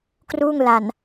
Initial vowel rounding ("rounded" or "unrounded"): rounded